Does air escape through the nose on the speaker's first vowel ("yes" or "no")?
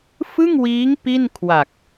no